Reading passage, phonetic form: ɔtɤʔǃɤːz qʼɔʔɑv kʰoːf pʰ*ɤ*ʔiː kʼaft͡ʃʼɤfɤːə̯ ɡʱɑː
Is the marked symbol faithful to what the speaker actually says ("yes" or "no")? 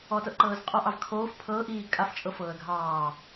no